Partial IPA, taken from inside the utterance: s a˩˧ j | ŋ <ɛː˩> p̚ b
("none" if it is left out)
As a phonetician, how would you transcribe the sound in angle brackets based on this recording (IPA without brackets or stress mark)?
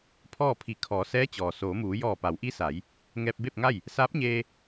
ɛː˧